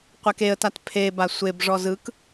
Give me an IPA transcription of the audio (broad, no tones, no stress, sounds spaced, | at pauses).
qʷ ɛ k e ə̯ t a t pʰ e b a sʷ e b ʐ ɔ z ɯ k